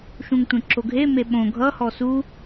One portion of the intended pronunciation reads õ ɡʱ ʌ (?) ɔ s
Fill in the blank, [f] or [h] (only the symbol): h